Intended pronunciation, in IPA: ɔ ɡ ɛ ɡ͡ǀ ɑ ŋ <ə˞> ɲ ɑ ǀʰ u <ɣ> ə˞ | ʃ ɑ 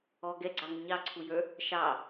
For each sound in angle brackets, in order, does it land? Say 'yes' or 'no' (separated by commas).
no, no